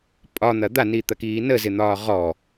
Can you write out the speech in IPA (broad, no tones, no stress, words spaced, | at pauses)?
pʼɒn̪ɐ d̪anit̪ɐkiː nəzɪn̪ɒː ʁɔ